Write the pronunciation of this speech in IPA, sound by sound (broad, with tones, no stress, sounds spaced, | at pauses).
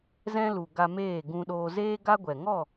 z ɛ̃˦ l u˨ ɡ a˧ m eː˦˨ ɡ ũ˧ ɗ oː˧ z eː˦ ɡ a˦ ɡʷ ɛ˨ ŋ ɔ˦˨